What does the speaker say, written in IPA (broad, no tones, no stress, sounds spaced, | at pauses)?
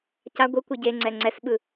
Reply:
c a ɡʷ ɯ kʷ ɯ ɟ e ŋ͡ǀ ɛ ŋ͡ǀ ɛ s ɓ ɯ